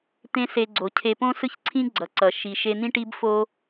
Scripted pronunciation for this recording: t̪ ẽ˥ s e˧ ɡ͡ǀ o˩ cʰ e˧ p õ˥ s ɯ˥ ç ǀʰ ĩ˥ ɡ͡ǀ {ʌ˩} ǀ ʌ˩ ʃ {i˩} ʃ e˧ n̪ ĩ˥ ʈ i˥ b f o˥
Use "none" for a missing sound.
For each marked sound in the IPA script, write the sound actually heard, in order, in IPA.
ʌ˩, i˩

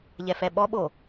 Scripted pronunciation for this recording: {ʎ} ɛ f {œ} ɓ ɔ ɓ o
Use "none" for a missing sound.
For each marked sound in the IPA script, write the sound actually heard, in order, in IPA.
ʎ, ɛ

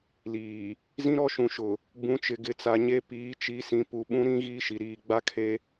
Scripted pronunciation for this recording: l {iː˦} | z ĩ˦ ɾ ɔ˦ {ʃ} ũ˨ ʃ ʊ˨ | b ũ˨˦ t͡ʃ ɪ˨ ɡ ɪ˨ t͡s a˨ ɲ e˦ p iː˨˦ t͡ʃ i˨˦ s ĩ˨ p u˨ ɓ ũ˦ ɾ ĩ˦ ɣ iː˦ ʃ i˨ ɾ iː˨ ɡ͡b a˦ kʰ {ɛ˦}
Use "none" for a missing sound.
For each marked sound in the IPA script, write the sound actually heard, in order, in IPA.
iː˨, ʃ, e˦

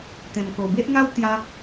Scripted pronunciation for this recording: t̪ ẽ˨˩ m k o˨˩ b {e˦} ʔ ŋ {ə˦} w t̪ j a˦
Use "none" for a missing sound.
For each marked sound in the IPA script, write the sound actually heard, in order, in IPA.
e˦, a˦

